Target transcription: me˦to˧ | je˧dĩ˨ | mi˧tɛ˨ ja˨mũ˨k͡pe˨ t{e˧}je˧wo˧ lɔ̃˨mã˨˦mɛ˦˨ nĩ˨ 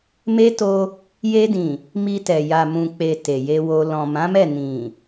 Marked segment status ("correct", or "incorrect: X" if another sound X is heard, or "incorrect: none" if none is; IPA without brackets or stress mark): incorrect: e˨